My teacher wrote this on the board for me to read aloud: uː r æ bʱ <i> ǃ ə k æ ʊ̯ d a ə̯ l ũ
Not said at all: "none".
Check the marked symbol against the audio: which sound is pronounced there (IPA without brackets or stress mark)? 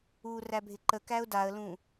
ɪ